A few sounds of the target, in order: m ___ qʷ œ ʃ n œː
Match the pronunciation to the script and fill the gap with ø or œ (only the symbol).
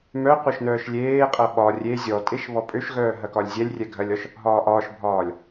œ